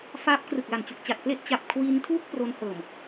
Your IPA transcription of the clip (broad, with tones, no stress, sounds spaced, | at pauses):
f aː˦˥ p̚ k r ɯ˨˩ k̚ l a˨˩ n t͡ɕ u˨˩ k̚ t͡ɕ a˨˩ t̚ p l e˥˩ ʔ t͡ɕ a˨˩ p̚ kʰ w i˧ n tʰ uː˥˩ k̚ p r o˦˥ n h ɤː˨˩ m